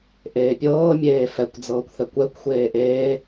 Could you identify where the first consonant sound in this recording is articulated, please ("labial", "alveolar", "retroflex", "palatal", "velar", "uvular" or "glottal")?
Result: glottal